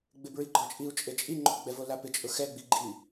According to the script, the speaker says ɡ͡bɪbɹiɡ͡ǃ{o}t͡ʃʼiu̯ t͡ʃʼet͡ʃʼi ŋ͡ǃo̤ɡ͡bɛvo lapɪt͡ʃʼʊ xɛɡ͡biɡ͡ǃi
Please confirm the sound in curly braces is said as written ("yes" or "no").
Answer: no